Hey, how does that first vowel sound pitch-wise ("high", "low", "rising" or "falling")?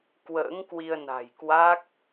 rising